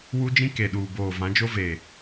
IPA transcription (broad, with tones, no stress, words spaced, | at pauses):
wu˦d͡ʒĩ˦ ke˨ɗuː˨boː˨ vã˨˦d͡ʒo˦veː˨